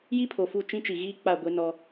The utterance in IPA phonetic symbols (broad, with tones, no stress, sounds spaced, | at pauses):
j i˦ pʰ o˨ f u˦˨ t͡ʃ ĩ˦ t͡ʃ i˨ ɣ iː˦ k͡p a˦˨ ɡʷ e˦ n ɔ˦